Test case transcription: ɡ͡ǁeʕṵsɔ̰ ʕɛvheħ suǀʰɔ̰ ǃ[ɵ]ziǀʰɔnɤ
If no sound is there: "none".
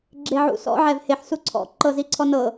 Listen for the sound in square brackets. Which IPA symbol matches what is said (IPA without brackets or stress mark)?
ɤ